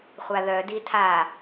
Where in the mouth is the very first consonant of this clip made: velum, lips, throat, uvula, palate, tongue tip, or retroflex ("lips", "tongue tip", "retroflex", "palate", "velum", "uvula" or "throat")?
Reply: uvula